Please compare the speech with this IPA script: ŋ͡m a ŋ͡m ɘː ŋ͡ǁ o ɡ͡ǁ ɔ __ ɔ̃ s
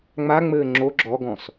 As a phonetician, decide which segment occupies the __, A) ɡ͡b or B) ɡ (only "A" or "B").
B